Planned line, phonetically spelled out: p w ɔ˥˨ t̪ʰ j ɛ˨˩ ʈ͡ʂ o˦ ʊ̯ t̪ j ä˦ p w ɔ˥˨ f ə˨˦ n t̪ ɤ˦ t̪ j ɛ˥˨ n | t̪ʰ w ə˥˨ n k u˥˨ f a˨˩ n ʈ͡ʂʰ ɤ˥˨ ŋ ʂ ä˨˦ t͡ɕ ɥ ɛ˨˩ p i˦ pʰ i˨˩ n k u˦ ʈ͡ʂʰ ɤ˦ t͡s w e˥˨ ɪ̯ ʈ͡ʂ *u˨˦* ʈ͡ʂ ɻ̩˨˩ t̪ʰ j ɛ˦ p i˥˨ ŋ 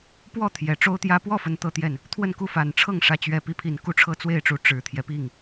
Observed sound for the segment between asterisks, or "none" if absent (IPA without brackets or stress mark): u˨˦